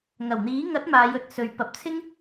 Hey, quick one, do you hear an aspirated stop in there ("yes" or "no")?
yes